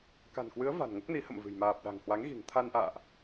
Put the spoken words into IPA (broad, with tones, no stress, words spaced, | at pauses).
ka̤˨˩nkwɨ˨˦ə̯ va̤˨˩nŋo˦˥k̚ni˨˦ hə̰˧˨mvɨ̤˨˩j maː˨˩p̚ɗa̤˨˩ŋ hwa˨˦ŋɣi̤˨˩ŋt̪ʰa˧nʔa̰ː˧˨ʔ